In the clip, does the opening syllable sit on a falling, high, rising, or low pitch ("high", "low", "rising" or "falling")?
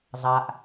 low